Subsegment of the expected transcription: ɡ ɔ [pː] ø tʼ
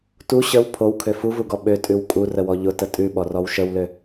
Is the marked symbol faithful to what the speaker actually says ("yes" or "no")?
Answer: no